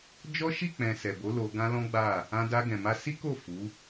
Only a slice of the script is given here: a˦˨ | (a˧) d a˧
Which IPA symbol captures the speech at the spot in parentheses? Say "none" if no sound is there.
ã˧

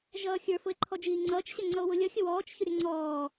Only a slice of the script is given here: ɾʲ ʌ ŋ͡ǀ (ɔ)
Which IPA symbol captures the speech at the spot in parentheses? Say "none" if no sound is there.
ɔː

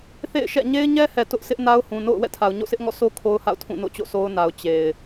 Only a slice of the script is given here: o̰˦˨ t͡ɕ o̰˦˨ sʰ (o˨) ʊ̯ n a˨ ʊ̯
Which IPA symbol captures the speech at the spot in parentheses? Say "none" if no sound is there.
o˦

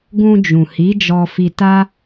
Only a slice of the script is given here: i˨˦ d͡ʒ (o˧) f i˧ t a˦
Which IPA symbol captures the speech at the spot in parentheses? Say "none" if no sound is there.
ɔ˧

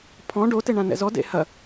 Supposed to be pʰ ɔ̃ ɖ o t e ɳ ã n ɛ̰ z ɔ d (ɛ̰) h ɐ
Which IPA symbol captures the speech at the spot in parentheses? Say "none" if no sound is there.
ḛ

